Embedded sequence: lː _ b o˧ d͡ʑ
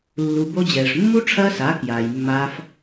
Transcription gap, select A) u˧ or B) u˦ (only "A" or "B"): A